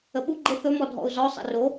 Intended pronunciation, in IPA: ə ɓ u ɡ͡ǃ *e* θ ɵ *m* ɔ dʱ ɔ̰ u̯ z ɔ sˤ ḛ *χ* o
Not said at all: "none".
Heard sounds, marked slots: e, m, r

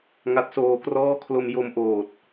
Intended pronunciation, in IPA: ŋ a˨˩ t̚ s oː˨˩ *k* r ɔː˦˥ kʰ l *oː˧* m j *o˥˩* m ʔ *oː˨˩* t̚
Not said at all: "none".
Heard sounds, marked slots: k, o˧, o˧, oː˨˩

